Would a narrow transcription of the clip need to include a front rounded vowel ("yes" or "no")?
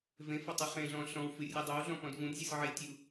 no